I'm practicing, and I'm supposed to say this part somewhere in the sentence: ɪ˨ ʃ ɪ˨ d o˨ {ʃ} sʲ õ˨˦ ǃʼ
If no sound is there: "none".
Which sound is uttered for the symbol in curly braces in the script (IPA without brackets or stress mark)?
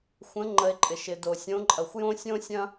none